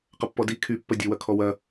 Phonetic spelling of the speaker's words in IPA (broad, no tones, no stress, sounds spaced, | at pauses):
q ɐ pː ɔ d i kʰ y pː ɐ dʲ ə w ɐ kʰ ɔ w ɐ